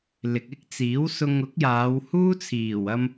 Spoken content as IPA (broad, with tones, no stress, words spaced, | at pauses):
lɪ˨k̚ɪ˥k̚t͡siː˨˥w sʊ˧ŋʊ˨˥k̚jaː˨˧whuː˥ t͡sʰiː˨˩wɐ˧m